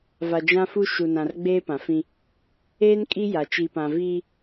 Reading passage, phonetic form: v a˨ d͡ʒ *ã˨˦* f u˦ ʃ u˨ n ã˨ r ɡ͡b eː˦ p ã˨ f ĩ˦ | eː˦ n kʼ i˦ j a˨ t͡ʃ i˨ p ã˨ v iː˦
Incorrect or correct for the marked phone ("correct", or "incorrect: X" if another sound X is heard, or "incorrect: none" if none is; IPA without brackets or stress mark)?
incorrect: ã˦